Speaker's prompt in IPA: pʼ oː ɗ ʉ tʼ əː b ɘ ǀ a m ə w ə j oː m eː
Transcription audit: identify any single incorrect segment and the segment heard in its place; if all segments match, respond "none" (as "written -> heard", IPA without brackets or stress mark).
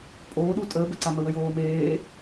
ʉ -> u